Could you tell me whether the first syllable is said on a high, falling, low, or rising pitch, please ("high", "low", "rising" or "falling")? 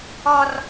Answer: high